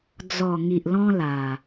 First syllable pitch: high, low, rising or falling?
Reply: low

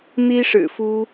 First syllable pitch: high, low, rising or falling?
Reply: high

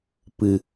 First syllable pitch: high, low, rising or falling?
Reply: low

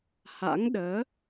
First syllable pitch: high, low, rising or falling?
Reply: rising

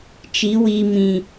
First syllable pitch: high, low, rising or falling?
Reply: rising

